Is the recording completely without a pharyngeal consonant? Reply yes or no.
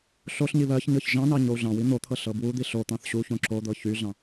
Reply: yes